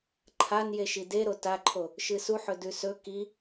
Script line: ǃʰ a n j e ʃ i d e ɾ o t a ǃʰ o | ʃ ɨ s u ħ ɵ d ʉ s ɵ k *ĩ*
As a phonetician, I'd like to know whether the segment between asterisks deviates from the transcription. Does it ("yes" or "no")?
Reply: yes